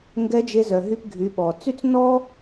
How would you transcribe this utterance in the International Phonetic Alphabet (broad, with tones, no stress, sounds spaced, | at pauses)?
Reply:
ŋ ɡ ɛ˧˥ d͡ʒ e˧ z œ˩ ɦ y˧ p ɡʱ y˩˧ ɓ ɔ˩ t͡s y˥ t͡s n ɔ˥